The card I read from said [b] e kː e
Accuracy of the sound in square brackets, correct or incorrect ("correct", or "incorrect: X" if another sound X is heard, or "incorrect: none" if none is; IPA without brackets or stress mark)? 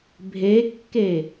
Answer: incorrect: bʱ